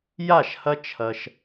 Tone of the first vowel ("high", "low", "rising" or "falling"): falling